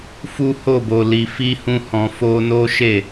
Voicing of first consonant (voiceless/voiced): voiceless